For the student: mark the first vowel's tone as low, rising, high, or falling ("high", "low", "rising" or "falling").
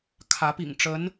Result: rising